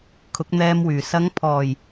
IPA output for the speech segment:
kʰ ʊ˨˥ k̚ n̪ ɛː˧ m w yː˨˩ s ɐ˨˧ ŋ pʰ ɔː˨˩ j

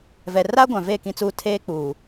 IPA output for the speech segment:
v ɛ˨ r a˦ ɡʷ ã˨ v e˦˨ k ĩ˦ t͡s uː˦ tʰ eː˦ k͡p uː˨

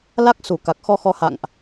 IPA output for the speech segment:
l a˦˥ k̚ s u˧˩ k a˨˩ k̚ x ɔ˧ x ɔ˨˦ h a̰˧˨ ŋ ʔ

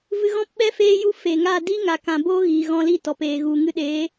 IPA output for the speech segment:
v ɨ˧ ɣ ɔ̃˦ p ɓ ɛ˦ f eː˦ j u˦ f e˨ ŋ a˦˨ d i˦ ŋ a˨ k ã˨ b oː˦ ɣ iː˨ ɣ ɔ̃˧ l i˦˨ t ɔ˨ p eː˨ ɣ u˨ ŋ ɨ˧ ɗ eː˨˦

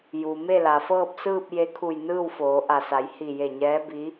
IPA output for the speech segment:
j u˩ m e˥˨ l a˩ f ɤː˥˨ p̚ s ɯː˥˨ p̚ j e˧ kʰ u˧˩ j n ɯː˥˨ w f oː˩˧ ʔ a˧˩ s a˩˧ j h i˧˩ j e˧˩ ɲ ɛː˧˥ b i˧˥

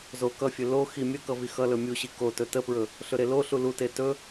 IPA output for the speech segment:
z o k ʌ fʲ ɵ l o x i mʲ ə k ʌ v i x ʌ l ɵ mʲ u ɕ i k o t ɵ t ə p ɹ ɵ | ɬ ɵ ɾ e l o ɬ u l u t e t ɵ

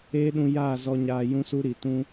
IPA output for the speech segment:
eː˦ ɗ ũ˧ j aː˦˨ z ɔ˧ ɲ aː˧ j ũ˦ s u˦ ɾ i˨ t ũ˦

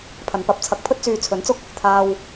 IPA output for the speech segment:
pʰ ɐ˨˧ n p ɐ˨˥ p̚ t͡sʰ ɐ˨˥ k̚ pʰ ɵ˥ t̚ t͡s yː˧ t͡sʰ ɵ˨˥ n t͡s ʊ˥ k̚ | t̪ʰ aː˧ w

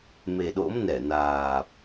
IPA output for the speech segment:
m e˨˩ ɗ o̰˧˥ m n ɛ˧˩ n aː˨˩ p̚

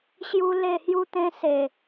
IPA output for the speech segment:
ɕ j u˧ l e˥˧ h j u˦ t̪ ẽ˧ s e˨˩

